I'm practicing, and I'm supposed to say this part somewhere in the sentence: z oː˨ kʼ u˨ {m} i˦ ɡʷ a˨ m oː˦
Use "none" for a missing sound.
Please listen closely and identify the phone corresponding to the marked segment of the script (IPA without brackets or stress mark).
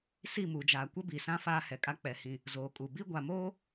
b